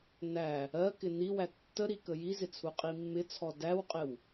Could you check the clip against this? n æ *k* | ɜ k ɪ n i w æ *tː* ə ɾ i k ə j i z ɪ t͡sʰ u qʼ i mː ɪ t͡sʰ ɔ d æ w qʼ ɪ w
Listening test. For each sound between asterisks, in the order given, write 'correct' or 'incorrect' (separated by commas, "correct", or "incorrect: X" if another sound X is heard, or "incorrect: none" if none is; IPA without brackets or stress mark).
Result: incorrect: none, correct